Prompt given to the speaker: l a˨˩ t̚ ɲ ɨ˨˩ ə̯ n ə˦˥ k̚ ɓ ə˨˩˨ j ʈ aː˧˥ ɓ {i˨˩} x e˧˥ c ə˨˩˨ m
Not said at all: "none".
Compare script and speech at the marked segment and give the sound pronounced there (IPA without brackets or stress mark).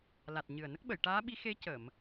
i˧˥